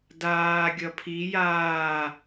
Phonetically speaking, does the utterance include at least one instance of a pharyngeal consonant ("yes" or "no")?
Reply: no